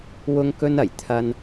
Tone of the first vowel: high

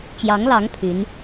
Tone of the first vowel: rising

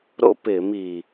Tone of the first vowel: falling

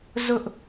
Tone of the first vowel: high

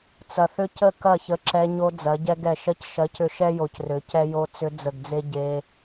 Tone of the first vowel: low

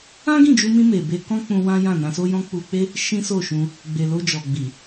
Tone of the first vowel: high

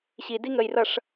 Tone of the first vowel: low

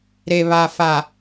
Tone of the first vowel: low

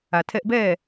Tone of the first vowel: low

